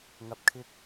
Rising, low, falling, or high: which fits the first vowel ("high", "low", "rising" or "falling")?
low